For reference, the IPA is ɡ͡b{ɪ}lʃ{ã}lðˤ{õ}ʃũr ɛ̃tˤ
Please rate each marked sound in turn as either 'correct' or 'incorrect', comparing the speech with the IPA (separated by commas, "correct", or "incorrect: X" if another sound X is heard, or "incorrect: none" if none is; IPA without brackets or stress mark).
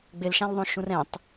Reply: correct, correct, correct